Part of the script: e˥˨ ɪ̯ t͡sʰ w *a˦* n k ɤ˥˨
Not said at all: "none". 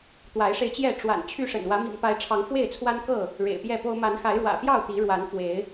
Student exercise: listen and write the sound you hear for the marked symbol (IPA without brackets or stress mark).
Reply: a˦